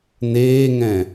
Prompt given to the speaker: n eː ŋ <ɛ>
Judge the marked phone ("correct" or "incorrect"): incorrect